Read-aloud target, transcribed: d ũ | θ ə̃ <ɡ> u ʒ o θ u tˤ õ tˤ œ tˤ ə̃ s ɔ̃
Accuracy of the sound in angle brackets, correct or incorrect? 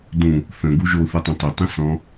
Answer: correct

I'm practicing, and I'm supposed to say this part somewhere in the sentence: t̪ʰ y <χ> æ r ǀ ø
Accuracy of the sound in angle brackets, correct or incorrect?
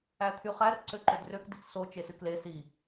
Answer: correct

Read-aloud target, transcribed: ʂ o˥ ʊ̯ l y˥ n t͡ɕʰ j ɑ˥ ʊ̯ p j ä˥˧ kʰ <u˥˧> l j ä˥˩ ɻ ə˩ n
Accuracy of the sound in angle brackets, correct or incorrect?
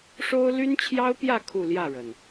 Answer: correct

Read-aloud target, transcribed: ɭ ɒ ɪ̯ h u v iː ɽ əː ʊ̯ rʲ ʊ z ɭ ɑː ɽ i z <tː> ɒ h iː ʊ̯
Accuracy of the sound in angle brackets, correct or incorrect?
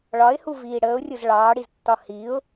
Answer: correct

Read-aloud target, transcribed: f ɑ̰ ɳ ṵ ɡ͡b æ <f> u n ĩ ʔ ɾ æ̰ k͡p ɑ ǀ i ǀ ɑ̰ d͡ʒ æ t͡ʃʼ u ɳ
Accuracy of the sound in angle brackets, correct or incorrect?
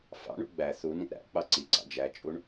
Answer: incorrect: θ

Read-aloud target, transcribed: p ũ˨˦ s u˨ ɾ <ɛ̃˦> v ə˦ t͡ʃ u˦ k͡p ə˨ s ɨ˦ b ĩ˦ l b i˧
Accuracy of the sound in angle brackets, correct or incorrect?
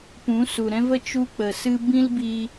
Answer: correct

